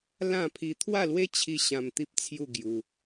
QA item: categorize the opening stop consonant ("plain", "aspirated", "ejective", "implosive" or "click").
aspirated